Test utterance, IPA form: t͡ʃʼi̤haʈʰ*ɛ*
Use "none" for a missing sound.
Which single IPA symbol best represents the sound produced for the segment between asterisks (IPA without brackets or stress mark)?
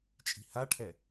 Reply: ɛ